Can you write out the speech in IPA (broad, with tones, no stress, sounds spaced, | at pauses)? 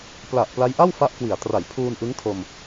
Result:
p l a˨˩ ʔ p l a˦˥ j ʔ a˥˩ w f a˦˥ ʔ k w i˩˦ a̯ t r a˩˦ j pʰ uː˧ n ʔ ɯ˦˥ ŋ tʰ o˧ m